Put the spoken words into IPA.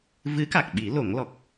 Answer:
v ɨ˧˥ k a˨˩ k̚ ɓ i˨˩˦ l o˨˩˦ ŋ l ɔ˨˩ k̚

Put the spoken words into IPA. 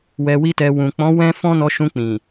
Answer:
w ɛ˧ w i˦ t ɛ˧ w ũ˨ k͡p ɔ̃˨˦ w ɛ̃˦ f ɔ̃˦ n ɔ˧ ʃ ũ˧ k͡p ĩ˨

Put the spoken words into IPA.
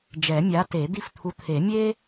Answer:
d͡ʒ ɛ˨˩˦ mʲ a˨˥ t e˨˩˦ d̪ i˦ f t̪ʰ u˨˥ t̪ʰ e˨˩˦ mʲ e˦

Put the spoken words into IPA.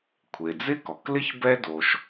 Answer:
kʷʰ e˩ d͡z ɪ˥ k ɔ˩ k l ɪ˥ ç b ɛ˧ d o˩ ʃ

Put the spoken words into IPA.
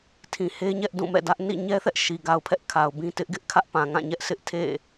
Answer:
tʰ ĩ˨ h e˦ ɲ ɛ˦ ʔ d ũ˦˨ m ɛ̰˦˨ d ä˦ ʔ n ḭ˦˨ ɲ ɛ˦ θ ɛ˦ ʔ ʃ i˨ ɡ a˨ ʊ̯ pʰ ɛ˦ ʔ kʰ a˨ ʊ̯ b ĩ˦ t ɪ˦ ʔ ɡ ɪ˦ ʔ kʰ ä˦ ʔ p ã˨ ŋ ã˦˨ ɲ ɛ˦ ʔ sʰ ɪ˦ ʔ tʰ ḛ˦˨

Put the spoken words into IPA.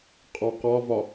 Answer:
qʼ ɔ q ɒ v ɒ

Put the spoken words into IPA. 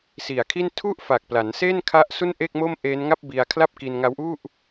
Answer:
s i˨˩ a̯ kʰ i˥˩ n tʰ u˥˩ ʔ f a˨˩ k̚ p l a˩˦ n s e˥˩ n kʰ a˥˩ ʔ s u˥˩ n ʔ e˥˩ k̚ m o˥˩ m ʔ eː˦˥ n ŋ a˥˩ p̚ b i˧ a̯ kʰ l a˥˩ p̚ k i˧ n ŋ a˦˥ w ʔ u˥˩ ʔ

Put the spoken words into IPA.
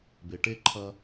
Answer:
b e˩ ʈ e˧ ǃʰ ɐ˧

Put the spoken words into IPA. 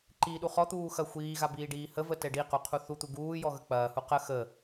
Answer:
ǃ iː ɗ u χ ɔ t̪ uː x ɐ xʷ iː ɣ a b iː ɖ iː h ə v ə t ɛ ɖ i q u qʰ u θ u t̪ u ɡ uː j ɔ ɣ ə k͡p ɐː h u q ə x ə

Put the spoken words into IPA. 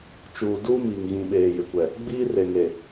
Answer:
t͡ʃ uː˨ d uː˦ m iː˨ ŋ ɣ ĩ˨ ɓ eː˨ j ɪ˨ kʷ ɛ˨ | ɡ͡b iː˦ r e˨ ŋ e˨

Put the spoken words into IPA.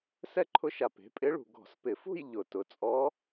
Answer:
s ɛ˥˧ ǃʰ ʊ˧˥ ʃ a˨ p e̤˩˥ pʼ ɪ˧˥ ɭ ṳ˨ ɡ ɔ̤˨˩˦ s p ɪ˨˩˦ f ṳ˥˧ j ʎ ʊ˨˩˦ t ʊ˩˥ t͡sʼ ɔ˧˥

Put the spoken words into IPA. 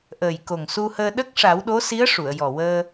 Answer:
ʔ əː˨˩ j k o˨˩ ŋ s u˧ h əː˧ ɗ ə˦˥ k̚ ʂ a˨˩˦ w ɗ o˧˥ s i˧˥ ə̯ ʂ u˨˩˨ ə̯ j ɔ˨˩ w əː˧

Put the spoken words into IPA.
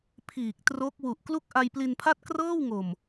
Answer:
pʰ iː˨˩ k̚ t r o˦˥ k̚ w u˨˩ ʔ k l u˥˩ k̚ ʔ a˧ j p l i˧ n pʰ a˥˩ t̚ k r ɤː˥˩ w ŋ o˨˩ m

